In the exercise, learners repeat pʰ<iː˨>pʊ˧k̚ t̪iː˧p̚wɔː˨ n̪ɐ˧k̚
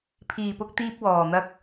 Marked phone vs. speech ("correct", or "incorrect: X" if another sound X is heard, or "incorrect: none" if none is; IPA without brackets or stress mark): correct